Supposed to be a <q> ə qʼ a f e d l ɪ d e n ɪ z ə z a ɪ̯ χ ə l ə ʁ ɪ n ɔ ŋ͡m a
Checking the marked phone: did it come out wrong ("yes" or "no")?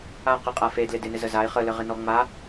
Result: no